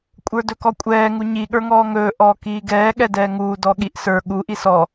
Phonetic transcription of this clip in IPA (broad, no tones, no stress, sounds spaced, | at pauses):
kʷʼ ə˞ d ɵ k ɔ kʷʼ ɛː ŋ u ɲ i ɠ ə˞ ŋ ɔː ŋ ɵː ʔ ɔː k iː ɡ ɛː ɠ ɛ d ɛː ŋ uː d ɔ ɠ i ʔ s ə˞ ɠ u ʔ i s ɔ